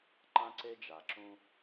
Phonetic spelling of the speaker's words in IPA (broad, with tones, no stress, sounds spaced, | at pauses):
ǃ ã˦ ǀ e˦ d͡ʒ a˨ ǁ ũ˦